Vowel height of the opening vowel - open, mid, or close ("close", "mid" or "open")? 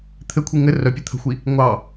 mid